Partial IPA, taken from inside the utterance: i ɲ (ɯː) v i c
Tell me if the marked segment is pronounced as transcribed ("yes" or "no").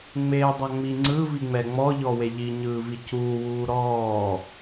yes